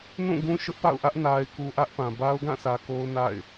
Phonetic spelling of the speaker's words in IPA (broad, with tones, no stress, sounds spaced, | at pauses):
n ũ˦˨ ɡ ũ˦ ʃ ʊ˦ ʔ p a̰˦˨ ʊ̯ ʔ ä˦ ʔ n a˨ ɪ̯ k u˨ ʔ ä˦ ʔ p ã˨ b a˦ ʊ̯ ɡ ã˦˨ s ä˨ k o˦ ʊ̯ n a̰˦˨ ɪ̯